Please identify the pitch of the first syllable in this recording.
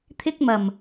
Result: high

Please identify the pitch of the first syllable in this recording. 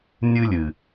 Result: high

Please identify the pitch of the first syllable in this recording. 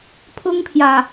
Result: high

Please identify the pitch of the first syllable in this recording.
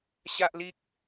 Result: high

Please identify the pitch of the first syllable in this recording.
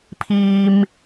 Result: low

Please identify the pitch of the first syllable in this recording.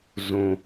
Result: low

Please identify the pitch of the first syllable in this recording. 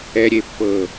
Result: low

